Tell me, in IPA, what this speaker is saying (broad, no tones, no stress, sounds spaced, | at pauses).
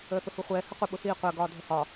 əː θ ʊ h u χʷ ɛː h ə qʷ ə ɓ ʊ θ iː qʷ əː ɡ ɒː dʱ ə h ɒ